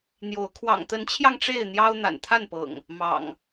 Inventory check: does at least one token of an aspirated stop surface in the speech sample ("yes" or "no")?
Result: yes